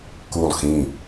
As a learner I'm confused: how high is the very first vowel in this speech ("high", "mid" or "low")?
high